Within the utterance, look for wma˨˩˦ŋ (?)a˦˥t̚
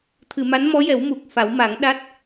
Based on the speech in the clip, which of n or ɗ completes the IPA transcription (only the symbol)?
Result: ɗ